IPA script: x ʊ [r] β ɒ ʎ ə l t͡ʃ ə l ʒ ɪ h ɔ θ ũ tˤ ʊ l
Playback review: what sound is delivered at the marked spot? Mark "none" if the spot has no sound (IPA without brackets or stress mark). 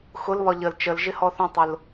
l